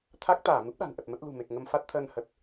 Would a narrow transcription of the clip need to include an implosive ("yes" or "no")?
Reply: yes